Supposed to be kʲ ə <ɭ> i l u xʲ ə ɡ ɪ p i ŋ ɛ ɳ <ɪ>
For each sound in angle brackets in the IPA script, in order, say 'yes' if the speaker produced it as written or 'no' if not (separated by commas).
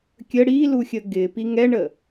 no, no